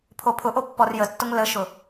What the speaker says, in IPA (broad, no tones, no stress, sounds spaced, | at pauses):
pʰ o pʰ ʊ ʔ o pː ɔ r j ə tː ʊ ŋ l ə ʃ ʊ